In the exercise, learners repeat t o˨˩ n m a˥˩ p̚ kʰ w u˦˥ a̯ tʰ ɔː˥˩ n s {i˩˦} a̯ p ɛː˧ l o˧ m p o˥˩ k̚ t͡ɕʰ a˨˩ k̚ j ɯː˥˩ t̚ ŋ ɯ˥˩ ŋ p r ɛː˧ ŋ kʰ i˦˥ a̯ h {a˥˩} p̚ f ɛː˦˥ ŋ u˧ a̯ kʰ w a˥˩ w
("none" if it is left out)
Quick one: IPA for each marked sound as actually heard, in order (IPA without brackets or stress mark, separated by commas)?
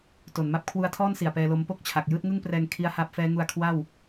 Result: i˨˩, a˦˥